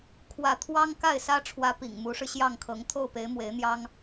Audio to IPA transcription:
kʰ w ä˥˩ t̪ʰ w ɑ˥ ŋ k a˥˩ ɪ̯ s ä˥ ʈ͡ʂʰ w ä˧˥ p ḭ˨˩ ŋ m u˧˥ ʂ ɻ̩˧ ɕ j ɑ˥˩ ŋ kʰ ɤ˧˥ ŋ t̪ʰ o˥˩ ʊ̯ p e˧˥ ɪ̯ m w e˧˥ ɪ̯ n̪ j ɑ˥ ŋ

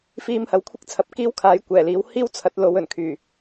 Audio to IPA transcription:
f iː˧ m h ɐ˨˥ w kʷʰ ɪ˥ k̚ t͡sʰ ɐ˨˥ p̚ k iː˥ w kʰ aː˨˥ j kʷ ɛː˨˩ l iː˨˥ w h iː˥ w t͡sʰ ɐ˨˥ t̚ l o˨˧ w ɵ˨˩ n kʰ yː˨˩

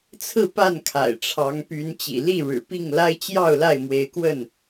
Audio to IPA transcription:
t͡sʰ ɹ̩˥˨ p a˥˨ n kʰ a̰˨˩ ɪ̯ ʈ͡ʂʰ ɑ˨˦ ŋ p y˨˦ n t͡ɕ ḭ˨˩ l i˥˨ ɻ ɻ̩˨˩ p i˥˨ ŋ l a˦ ɪ̯ t͡ɕ j ɑ˥˨ ʊ̯ l a˥˨ ɪ̯ m w e˨˦ ɪ̯ k w ə˥˨ n

